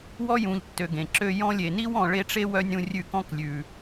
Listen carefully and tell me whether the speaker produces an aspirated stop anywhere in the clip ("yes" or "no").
no